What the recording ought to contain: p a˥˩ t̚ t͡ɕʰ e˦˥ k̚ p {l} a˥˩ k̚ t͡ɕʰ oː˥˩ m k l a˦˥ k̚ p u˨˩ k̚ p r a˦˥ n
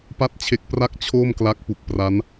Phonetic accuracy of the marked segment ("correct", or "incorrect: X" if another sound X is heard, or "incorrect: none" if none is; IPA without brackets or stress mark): incorrect: r